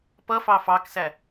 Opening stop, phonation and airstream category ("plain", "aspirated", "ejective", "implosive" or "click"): plain